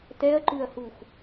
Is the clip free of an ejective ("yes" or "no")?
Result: yes